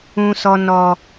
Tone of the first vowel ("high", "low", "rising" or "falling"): high